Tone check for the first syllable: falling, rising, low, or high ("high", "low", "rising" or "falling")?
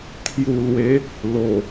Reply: low